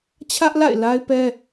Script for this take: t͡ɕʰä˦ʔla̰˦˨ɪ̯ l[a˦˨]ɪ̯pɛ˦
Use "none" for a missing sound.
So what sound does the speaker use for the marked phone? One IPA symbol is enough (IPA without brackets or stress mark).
a˦